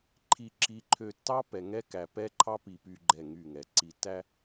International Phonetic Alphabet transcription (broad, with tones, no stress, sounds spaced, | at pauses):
ǃʰ i˨ ǁ i˨ ǃʰ ø˨ tː ɑ˦ p ɛ˨ ŋ ɛ˦ k æ˨ p ɛ˦ ǃʰ ɑ˦ p i˨ p y˨ ɡ͡ǃ ɛ˦˨ ŋ y˦˨ ŋ ɛ˨ ǀ i˨ tː æ˦